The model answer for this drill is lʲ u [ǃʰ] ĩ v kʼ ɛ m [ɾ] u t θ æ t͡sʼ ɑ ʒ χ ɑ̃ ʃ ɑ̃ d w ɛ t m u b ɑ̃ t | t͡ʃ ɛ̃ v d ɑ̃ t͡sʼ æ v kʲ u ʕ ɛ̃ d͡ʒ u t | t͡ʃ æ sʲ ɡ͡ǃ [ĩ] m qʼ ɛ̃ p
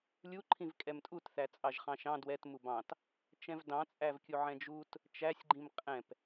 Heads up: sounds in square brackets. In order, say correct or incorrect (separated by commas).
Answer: correct, incorrect, correct